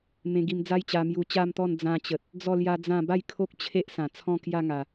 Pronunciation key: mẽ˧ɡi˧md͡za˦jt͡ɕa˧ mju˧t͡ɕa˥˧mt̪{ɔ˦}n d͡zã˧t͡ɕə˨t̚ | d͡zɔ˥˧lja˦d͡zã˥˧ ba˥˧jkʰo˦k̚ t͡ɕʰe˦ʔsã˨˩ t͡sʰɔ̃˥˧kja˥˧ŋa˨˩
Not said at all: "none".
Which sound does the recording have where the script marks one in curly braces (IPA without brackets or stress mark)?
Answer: ɔ˥˧